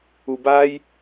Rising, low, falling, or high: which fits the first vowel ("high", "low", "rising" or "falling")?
low